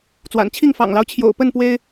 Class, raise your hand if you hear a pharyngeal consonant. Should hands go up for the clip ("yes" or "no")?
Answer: no